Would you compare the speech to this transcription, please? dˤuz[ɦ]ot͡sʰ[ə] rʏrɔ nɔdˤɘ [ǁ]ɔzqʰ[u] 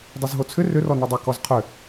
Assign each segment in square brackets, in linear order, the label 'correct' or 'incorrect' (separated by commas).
correct, incorrect, incorrect, incorrect